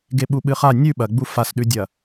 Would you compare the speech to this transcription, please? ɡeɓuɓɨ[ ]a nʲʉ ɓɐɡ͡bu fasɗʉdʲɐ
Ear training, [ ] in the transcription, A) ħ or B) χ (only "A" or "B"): B